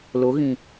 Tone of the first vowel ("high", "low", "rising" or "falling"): rising